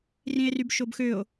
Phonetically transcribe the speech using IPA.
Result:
r ĩ e̯ r y b ʃ o b x ø o̯

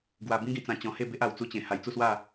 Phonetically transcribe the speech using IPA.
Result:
ɡ w a˧ b ĩ˦ ɡ ĩ˧ t͡s ã˧ t͡ɕ ɔ̃˧ h e˥˧ b e˦ ʔ a˧ w t͡s u˦ t͡ɕ ẽ˧ h a˧ j t͡s u˥˧ s w a˥˧

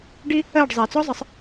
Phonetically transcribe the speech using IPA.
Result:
ɖ i˦ | ɜ˦˨ ɖ zˤ ɛ˨ t͡s ɔ˦ zˤ ə˨˦ sˤ

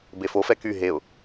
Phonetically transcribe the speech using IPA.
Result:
b e f o f ɛ k y ɦ e ʊ̯

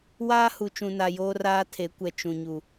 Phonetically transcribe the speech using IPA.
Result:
w aː˦ h u˨ t͡ʃ ũ˨ n a˨ j oː˦ r aː˦ tʰ e˨˦ kʷ ɛ˨ t͡ʃ ũ˨ ɲ u˨

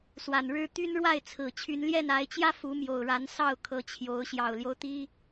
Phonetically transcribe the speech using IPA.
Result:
s w a˨˩ n ɻ ɻ̩˦ t̪ y˦ n ɻ w a˥˨ ɪ̯ t͡sʰ ɹ̩˨˩ t͡ɕʰ y˨˦ n l j ɛ˥˨ n a˨˦ ɪ̯ t͡ɕ j ä˦ f u˨˦ m j o˨˩ ʊ̯ ɻ a˨˦ n s ɑ˥˨ ʊ̯ kʰ ɤ˨˦ t͡ɕʰ j o˨˦ ʊ̯ ɕ j ɑ˨˩ ʊ̯ l j o˦ ʊ̯ t̪ i˦

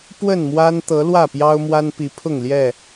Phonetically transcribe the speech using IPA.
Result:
p w ə˥˨ n m w a˦ n t̪ ɤ˨˦ l w ä˥˨ p j ɑ˦ ʊ̯ m w a˦ n p i˨˦ pʰ ʊ˥˨ ŋ l j ɛ˥˨

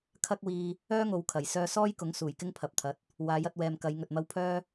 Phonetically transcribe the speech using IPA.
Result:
kʰ ɐ˥ k̚ w iː˧ | œː˥ ŋ o˨˧ w kʰ ɐ˨˩ j s œː˧ s ɔː˥ j k ʊ˨˥ ŋ s uː˨˩ j k ɪ˥ ŋ pʰ ɐ˨ p̚ t̪ʰ ɐ˨ t̚ | w aː˨˥ j ɐ˧ t̚ w ɛː˨ m k ɐ˨˧ j ŋ ɵ˨ t̚ m ɐ˧ w pʰ œː˥

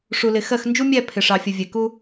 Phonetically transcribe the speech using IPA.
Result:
ʂ u˨ l ɪ˨ x ɜ˦˨ x n d͡ʒ u˦ mʲ æ˦˨ pʰ ɪ˨ ʂ ɑ˨ fʲ ə˨ vʲ ɛ˨ k u˦

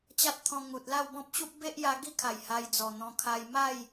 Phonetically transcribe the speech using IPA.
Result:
t͡ɕ a˦ t̚ t̪ʰ ɔ̃˧ ŋ u˨ t̚ l a˥˧ w b ɔ̃˦ p̚ ɕ u˦ p̚ b e˦ ʔ j a˧ ɡ i˥˧ kʰ a˨˩ j h a˧ j d͡z ɔ˨˩ n̪ ɔ̃˧ kʰ a˧ j m a˥˧ j

